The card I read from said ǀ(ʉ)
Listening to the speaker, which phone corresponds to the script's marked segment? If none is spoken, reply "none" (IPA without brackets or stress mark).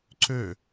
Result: ø